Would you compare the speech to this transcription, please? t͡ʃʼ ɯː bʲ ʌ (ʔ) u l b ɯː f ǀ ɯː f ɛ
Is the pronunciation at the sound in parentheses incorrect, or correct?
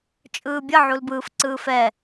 incorrect